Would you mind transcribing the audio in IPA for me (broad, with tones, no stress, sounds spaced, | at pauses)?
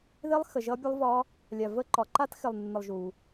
ð ɪ˦˥ lˠ x ə˨ ʒ ʌ˦˥ bʲ ə˦˥ lˠ v ɒ˦˥ | lʲ a˨ v ə˦˥ ǃ ɒ˨ ǃ a˦˥ t x ɪ˨ lˠ nː ə˨ lˠ ʒ u˨